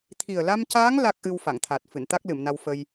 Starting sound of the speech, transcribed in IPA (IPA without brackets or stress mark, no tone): t̪ʰ